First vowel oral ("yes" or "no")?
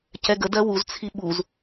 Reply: yes